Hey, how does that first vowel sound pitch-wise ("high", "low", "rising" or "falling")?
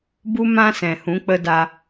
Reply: high